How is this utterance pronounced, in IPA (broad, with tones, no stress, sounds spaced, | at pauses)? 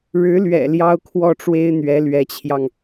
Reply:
ɻ ɻ̩˧˥ l ɥ ɛ̰˨˩ l j ɑ˥ ʊ̯ kʰ w ɔ˥˩ ʈ͡ʂ w e˥ ɪ̯ n̪ ɥ ɛ˧˥ l ɥ ɛ˧˥ t͡ɕʰ j ɑ˧ ŋ